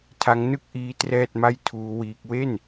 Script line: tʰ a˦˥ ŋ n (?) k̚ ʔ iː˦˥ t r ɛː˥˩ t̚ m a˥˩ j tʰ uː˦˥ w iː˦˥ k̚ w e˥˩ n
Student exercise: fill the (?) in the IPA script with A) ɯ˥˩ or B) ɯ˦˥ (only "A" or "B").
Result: A